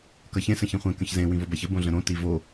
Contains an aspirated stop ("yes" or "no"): no